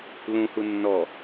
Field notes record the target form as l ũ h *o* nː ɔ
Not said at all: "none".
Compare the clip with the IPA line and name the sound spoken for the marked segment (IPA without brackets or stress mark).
u